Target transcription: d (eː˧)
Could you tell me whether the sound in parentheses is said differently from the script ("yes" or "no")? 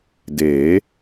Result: yes